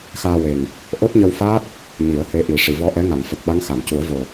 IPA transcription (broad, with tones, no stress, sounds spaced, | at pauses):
x aː˧ w e˨˩ ŋ | ʔ o˦˥ t̚ ɲ ə˧ w f aː˦˥ t̚ | ɲ i˨˩˦ ə̯ h e˧˥ ʔ i˨˩˦ ʂ i˨˩˨ v ɔ˧ ʔ ɛ˧˥ ŋ a˨˩˨ ŋ f ə˨˩ k̚ ɓ a˧˥ ŋ x a˨˩˨ m c u˨˩˦ ə̯ v o˨˩